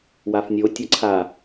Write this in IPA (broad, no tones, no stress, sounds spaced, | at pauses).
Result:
w a f nʲ o tʲ ɐ ǀʰ a